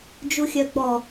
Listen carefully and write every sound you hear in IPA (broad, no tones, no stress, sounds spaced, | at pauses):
d͡ʒ u xʲ œ ɡ͡b ɔ